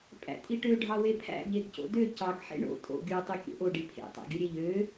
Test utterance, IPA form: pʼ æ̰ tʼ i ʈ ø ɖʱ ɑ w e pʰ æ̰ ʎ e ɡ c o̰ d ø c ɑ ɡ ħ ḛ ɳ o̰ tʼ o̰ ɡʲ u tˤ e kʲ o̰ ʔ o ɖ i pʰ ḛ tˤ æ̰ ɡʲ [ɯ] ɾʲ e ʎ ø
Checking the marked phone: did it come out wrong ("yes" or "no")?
no